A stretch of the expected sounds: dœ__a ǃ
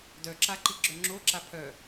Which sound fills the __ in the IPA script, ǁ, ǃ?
ǁ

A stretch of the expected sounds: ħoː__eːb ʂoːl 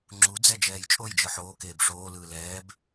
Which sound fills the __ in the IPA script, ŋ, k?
k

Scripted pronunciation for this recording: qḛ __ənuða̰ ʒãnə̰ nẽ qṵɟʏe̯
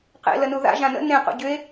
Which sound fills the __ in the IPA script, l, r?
l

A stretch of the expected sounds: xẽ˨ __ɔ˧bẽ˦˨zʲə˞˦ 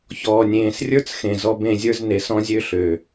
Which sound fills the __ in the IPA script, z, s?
z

